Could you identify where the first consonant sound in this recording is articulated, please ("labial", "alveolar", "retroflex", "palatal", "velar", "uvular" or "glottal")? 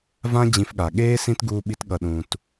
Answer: labial